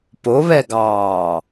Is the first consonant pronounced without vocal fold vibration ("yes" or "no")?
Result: yes